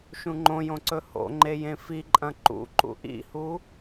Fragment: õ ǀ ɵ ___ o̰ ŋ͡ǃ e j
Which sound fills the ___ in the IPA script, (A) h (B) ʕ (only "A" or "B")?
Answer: A